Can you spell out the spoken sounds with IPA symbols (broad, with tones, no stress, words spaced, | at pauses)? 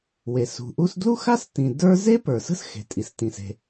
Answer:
we˩sṳ˩ʔu˥s dlu˥xa˥stĩ˩ də˞˥ ze˥ pə˞˩sə̤˥sxe̤˩ tʼi˩stĩ˩se̤˩